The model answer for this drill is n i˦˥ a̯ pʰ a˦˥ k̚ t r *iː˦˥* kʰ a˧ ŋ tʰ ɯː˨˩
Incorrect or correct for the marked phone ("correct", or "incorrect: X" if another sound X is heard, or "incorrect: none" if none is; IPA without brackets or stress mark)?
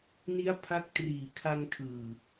incorrect: iː˨˩